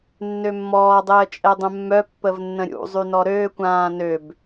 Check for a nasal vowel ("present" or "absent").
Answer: present